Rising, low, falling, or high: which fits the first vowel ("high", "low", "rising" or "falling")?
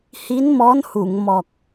rising